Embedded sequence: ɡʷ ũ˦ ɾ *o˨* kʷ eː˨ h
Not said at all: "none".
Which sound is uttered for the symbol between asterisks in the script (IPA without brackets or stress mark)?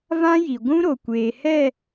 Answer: o˨